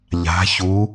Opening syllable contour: rising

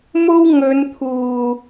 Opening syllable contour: high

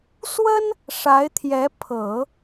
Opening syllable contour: high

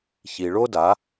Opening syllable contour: low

